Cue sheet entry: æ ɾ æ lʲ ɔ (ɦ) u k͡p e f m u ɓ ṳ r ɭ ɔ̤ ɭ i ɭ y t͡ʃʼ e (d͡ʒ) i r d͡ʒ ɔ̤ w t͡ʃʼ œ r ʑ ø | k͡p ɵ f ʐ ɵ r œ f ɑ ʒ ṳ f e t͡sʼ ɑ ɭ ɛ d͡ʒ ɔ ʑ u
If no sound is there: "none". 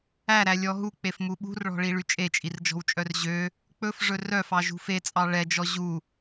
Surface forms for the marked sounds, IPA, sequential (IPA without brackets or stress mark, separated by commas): ɦ, t͡ʃʼ